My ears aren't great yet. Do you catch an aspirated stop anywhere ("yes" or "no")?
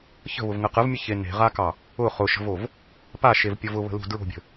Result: no